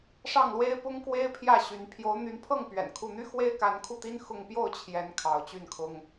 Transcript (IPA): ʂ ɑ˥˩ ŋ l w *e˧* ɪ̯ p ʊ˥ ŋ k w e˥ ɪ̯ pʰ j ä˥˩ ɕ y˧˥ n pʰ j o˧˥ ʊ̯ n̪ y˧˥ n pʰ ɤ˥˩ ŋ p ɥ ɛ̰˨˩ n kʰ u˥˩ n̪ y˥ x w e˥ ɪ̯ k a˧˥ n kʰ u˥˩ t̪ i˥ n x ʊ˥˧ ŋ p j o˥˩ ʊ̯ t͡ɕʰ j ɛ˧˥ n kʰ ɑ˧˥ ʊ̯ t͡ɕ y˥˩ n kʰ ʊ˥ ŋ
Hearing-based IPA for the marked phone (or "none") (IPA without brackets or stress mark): e˥